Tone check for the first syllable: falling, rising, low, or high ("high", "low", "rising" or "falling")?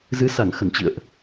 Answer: rising